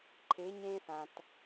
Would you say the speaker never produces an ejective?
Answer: yes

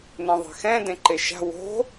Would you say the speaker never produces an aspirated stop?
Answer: yes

